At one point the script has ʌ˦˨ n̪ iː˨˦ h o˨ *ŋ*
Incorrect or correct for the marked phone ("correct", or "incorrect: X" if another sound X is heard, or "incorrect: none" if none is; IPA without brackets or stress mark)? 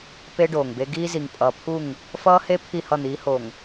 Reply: correct